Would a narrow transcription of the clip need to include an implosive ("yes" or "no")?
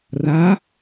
no